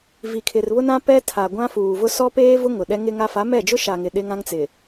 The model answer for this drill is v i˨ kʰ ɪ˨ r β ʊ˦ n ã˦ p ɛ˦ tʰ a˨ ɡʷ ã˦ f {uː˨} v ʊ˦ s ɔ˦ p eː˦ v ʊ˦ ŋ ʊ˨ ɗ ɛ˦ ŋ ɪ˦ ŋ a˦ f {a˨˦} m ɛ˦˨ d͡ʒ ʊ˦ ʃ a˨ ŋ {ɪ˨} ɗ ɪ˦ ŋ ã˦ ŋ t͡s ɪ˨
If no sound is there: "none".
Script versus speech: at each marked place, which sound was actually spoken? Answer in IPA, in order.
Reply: uː˨, a˨˦, ɪ˨

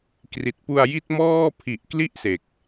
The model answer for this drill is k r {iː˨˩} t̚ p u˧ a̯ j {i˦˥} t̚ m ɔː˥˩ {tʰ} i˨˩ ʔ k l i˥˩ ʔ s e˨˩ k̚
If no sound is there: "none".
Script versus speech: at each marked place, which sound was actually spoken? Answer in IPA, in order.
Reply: i˨˩, i˦˥, pʰ

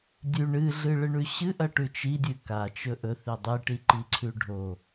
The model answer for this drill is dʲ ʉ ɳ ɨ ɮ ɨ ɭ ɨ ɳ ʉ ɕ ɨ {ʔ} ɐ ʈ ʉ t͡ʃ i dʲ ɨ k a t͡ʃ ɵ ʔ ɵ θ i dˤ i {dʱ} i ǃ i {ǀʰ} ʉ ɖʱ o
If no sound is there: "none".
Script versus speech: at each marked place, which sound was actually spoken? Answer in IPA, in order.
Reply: ʔ, ʈ, ǀʰ

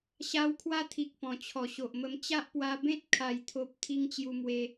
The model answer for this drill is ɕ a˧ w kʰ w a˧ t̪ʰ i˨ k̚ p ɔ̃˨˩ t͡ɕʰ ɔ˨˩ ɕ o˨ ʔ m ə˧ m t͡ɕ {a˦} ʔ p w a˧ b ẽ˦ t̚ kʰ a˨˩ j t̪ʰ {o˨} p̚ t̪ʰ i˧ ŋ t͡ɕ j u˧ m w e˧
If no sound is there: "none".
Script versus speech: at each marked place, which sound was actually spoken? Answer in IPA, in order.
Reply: a˦, o˨

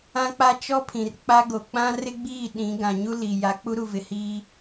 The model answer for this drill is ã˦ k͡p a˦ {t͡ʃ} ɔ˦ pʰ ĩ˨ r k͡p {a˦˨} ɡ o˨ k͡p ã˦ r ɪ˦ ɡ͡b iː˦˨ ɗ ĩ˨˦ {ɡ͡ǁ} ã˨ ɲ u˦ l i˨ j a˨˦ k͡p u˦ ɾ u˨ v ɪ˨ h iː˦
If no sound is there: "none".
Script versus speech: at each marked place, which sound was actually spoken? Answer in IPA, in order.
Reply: t͡ʃ, a˦, ɡ

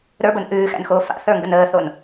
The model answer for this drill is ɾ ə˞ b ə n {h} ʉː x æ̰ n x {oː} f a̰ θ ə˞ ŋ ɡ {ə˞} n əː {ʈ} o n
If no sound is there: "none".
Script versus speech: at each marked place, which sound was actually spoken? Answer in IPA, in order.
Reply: ʔ, oː, ə, θ

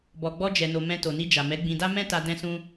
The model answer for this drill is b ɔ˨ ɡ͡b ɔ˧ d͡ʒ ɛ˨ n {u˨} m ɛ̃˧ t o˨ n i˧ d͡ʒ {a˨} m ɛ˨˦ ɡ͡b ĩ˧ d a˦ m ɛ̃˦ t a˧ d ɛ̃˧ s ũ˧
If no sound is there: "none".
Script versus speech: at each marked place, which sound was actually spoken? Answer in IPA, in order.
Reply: o˨, a˨

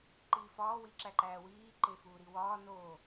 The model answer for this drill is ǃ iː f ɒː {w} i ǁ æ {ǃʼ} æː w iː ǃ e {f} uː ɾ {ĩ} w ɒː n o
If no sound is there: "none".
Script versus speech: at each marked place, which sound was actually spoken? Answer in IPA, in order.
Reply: w, ǃ, f, i

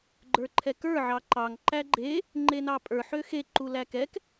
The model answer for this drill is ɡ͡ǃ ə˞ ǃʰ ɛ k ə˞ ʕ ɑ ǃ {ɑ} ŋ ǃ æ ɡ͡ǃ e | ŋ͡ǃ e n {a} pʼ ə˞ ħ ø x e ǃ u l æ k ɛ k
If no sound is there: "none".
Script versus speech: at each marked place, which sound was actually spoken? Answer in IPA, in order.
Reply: ɑ, ɑ

